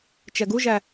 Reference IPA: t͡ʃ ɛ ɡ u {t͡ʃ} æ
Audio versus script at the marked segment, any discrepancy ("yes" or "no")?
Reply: yes